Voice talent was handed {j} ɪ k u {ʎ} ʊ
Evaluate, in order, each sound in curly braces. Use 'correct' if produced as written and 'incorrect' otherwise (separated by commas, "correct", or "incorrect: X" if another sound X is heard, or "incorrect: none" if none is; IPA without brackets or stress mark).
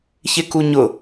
incorrect: ç, incorrect: ɲ